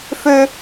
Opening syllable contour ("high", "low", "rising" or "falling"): high